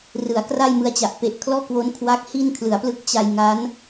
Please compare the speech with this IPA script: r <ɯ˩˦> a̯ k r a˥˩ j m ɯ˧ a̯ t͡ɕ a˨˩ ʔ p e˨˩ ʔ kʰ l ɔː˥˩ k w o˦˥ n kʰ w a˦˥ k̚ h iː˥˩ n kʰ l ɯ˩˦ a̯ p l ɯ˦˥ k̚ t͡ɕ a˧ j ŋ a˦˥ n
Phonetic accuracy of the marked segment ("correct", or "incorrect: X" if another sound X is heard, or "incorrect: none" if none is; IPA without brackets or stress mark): correct